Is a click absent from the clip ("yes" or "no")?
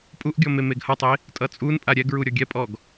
yes